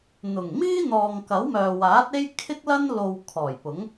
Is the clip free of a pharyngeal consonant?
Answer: yes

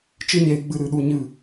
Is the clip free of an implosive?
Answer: no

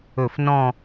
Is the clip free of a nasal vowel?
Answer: no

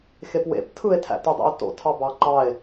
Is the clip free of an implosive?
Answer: yes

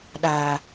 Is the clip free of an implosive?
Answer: no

